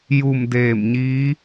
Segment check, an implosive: absent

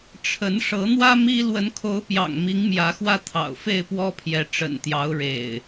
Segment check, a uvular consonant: absent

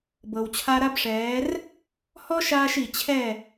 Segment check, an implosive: absent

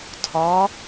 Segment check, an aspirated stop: present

